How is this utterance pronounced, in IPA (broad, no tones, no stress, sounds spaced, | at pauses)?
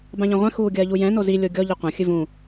b ã ʎ ɐ̃ ʁʷ ɛ̃ x uː ɡʲ ɐː ʎ u j ɛ̃ n o z i lʲ o ɡʲ ɔ ʎ ɨ qʷ ɐ̃ xʲ ɨ v ũ